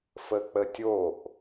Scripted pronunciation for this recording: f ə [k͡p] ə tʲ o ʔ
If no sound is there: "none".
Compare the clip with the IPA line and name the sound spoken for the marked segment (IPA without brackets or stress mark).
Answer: k͡p